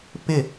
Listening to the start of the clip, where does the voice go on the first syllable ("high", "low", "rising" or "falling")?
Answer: falling